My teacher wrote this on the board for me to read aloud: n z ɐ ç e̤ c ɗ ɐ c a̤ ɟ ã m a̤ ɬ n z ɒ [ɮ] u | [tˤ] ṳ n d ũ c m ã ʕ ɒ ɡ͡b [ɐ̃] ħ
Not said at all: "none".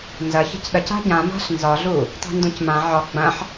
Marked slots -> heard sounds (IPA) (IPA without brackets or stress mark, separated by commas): ɮ, tˤ, ɐ̃